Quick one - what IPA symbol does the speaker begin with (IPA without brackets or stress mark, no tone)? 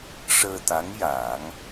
ʂ